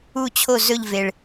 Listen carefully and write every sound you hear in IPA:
u˦˨ t͡ɕʰ o˦˨ z ɵ˦˨ ʎ v e˨˩ ɭ

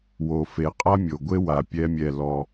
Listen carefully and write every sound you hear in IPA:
w o˨ f e˨ qʼ a˦ mʲ o˨ ɡʷ e˦ w a˨ pʲ ɛ˦ mʲ ɛ˦˨ l ɔ˦

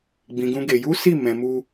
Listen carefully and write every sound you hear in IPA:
ɡ͡b ĩ˧ ɡ ũ˦ ɡ e˧ j u˦ s i˦˨ m ɛ̃˧ m u˦

